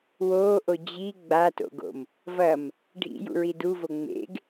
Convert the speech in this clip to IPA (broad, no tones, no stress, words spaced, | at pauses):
woːʔo d͡ʑi ɡ͡bato̰ɡo̰m | vɐm | ɖʱḭjṵɹi duvo ŋ͡mḛɡ